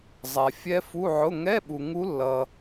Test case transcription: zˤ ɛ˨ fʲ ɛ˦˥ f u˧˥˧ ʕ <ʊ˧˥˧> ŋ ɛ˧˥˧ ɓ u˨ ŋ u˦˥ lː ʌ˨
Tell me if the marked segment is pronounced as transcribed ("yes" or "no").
yes